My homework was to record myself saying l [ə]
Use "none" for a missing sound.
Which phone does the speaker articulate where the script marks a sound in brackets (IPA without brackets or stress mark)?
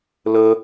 ə